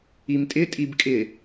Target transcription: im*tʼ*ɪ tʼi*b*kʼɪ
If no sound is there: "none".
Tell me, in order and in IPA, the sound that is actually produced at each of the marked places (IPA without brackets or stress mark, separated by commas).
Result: tʼ, b